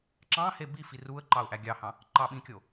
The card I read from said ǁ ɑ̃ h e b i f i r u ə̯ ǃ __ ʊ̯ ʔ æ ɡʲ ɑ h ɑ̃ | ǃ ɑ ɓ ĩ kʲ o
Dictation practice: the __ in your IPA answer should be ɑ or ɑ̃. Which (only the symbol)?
ɑ